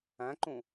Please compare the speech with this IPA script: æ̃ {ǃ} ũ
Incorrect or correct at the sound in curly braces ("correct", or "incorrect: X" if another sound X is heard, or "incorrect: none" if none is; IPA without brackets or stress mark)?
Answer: correct